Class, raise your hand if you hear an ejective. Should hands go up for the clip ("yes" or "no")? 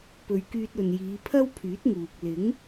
no